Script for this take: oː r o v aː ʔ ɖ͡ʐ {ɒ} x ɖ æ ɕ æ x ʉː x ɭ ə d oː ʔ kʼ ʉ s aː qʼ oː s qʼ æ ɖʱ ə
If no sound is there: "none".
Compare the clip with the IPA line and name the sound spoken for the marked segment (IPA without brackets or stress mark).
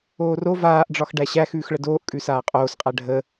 ɒ